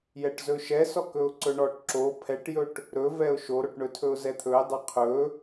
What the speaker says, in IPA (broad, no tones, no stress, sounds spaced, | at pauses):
j ɛ ʈ z ɵ ʃ ɛ s ɔ k ɵ ʊ̯ ǀ ɵ ɳ ɔ ʈ ǁ o pʰ ɛ ʈ j ɵ ʈ | ɾ ɵ v ɛ ʊ̯ ʃ o ɾ o ʈ ɳ ɵ tʰ ɵ ʊ̯ z ɛ t̪ʰ ɵ ɪ̯ dˤ ɛ qʰ ɵ